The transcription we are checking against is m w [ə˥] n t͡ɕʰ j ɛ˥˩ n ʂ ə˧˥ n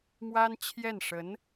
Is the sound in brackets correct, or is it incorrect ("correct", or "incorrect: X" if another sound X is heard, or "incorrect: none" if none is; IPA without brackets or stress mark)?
incorrect: a˥